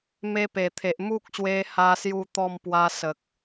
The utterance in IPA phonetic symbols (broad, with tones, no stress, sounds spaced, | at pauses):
m e˧ p e˨˩ t̪ʰ e˨ ʔ m u˦ k̚ ɕ w e˧ h a˦ s j u˥˧ t̪ ɔ˥˧ m p w a˧ s ə˨ k̚